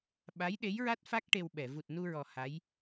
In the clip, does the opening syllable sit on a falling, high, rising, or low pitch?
rising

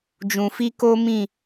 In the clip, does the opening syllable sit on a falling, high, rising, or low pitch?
low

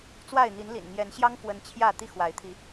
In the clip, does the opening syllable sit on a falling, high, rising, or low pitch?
falling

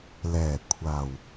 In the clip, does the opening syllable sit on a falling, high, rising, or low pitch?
low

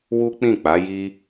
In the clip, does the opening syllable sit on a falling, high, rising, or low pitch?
high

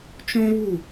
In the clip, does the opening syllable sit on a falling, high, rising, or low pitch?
high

